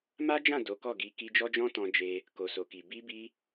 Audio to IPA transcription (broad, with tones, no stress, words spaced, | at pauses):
ma˦d͡ʒã˦˨ do˨˦kɔ˦˨ɡi˨˦ ki˧d͡ʒɔ˦d͡ʒɔ̃˦tɔ̃˧ d͡ʒe˧ | ko˨so˨ki˨ bi˧bi˧